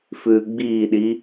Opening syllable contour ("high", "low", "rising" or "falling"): low